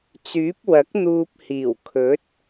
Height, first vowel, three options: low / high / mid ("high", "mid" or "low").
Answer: high